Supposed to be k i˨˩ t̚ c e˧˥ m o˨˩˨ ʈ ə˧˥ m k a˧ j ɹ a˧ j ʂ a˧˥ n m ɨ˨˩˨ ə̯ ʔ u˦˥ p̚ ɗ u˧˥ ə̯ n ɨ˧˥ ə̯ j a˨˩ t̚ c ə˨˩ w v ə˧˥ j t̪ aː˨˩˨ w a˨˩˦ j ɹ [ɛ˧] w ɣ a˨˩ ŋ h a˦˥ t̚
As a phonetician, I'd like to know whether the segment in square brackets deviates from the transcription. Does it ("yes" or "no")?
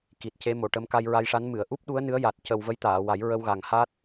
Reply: yes